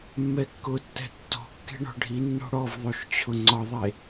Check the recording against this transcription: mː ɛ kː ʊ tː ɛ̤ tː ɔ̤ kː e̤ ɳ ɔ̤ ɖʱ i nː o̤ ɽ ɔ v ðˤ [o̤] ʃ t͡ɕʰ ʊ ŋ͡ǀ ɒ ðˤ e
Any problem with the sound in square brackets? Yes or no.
yes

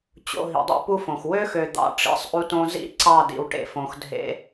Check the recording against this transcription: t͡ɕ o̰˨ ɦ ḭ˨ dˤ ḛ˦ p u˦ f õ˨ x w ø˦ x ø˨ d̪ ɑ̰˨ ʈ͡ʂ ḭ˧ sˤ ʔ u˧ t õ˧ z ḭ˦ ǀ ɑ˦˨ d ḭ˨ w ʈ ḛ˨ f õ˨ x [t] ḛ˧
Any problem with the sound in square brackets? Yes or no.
yes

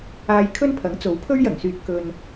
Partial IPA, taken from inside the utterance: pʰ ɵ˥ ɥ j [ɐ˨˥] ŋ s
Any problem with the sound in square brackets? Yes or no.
yes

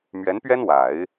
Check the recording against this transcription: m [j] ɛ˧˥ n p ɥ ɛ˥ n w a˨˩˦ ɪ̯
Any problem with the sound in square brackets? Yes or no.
yes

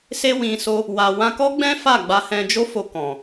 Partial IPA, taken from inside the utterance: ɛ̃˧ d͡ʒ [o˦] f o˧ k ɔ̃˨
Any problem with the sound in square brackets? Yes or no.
no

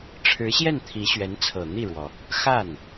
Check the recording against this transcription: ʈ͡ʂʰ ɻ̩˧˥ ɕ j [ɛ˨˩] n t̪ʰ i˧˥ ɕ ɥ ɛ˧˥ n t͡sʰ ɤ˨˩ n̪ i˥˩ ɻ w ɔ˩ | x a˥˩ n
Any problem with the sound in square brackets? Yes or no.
yes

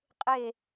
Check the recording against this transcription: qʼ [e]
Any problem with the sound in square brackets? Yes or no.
no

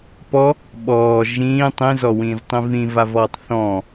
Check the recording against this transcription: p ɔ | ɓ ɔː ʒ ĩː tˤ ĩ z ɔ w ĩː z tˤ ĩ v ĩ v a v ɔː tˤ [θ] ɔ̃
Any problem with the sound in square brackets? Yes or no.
no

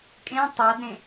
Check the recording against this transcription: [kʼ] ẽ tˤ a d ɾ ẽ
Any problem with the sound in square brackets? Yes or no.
no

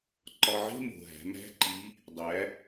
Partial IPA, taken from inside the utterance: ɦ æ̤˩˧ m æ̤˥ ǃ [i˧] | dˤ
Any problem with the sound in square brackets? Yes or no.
yes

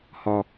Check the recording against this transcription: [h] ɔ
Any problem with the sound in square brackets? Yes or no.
no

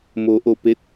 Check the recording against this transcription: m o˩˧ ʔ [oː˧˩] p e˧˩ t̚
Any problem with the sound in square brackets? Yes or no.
yes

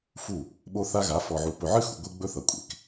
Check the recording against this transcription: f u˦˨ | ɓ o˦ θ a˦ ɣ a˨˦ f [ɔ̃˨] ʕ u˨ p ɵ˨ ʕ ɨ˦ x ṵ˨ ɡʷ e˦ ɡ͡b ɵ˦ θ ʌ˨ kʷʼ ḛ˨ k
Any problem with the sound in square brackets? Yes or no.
yes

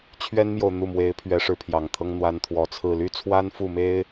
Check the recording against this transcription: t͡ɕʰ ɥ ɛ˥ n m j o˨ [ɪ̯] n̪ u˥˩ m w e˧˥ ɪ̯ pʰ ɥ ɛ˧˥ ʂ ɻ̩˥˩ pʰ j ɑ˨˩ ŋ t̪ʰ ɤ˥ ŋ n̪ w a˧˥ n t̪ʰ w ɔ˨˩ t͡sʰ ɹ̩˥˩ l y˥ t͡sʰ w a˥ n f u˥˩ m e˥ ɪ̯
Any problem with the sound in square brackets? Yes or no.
yes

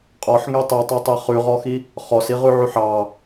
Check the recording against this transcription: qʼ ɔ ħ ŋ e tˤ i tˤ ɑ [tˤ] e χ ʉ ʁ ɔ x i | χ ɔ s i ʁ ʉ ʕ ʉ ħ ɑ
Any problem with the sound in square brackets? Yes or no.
no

